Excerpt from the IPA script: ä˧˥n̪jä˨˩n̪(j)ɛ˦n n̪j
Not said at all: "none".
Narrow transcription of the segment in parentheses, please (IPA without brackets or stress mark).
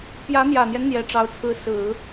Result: j